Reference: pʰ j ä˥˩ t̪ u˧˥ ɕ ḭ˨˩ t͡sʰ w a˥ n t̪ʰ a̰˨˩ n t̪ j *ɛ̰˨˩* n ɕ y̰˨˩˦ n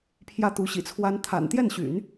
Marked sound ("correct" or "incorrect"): incorrect